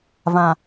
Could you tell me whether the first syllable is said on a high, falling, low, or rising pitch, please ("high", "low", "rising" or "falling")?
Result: low